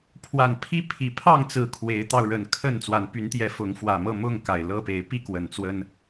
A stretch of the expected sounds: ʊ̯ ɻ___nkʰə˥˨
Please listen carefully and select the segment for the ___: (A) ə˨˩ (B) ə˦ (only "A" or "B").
A